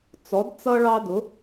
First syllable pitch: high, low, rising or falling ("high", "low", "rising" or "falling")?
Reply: rising